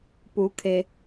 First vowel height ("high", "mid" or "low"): high